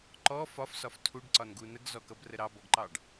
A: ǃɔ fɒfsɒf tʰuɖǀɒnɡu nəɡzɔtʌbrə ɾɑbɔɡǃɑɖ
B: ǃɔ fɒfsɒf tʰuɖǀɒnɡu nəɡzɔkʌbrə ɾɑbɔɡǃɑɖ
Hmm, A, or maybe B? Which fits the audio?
B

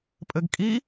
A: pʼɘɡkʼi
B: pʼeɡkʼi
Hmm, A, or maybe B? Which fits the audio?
A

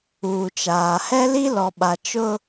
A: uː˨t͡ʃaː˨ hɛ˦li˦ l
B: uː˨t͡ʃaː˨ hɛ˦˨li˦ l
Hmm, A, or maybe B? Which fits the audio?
A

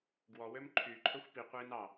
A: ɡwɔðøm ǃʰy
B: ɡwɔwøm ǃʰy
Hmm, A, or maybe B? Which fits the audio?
B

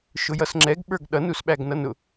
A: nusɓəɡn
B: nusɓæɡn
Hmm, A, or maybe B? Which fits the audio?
B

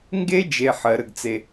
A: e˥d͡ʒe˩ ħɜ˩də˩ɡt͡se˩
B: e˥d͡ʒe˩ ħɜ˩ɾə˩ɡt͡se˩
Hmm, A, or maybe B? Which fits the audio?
B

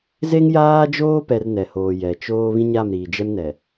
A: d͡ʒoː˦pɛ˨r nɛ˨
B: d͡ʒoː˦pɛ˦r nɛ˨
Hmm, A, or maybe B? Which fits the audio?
A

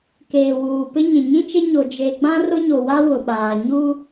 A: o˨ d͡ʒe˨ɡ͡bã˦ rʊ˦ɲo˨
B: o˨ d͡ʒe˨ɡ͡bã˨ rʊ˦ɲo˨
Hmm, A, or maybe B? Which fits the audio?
A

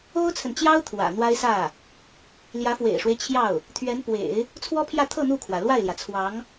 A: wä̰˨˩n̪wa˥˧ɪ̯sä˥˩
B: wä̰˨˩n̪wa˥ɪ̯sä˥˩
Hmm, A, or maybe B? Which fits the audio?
B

